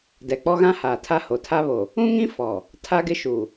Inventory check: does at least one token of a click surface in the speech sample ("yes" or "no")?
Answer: no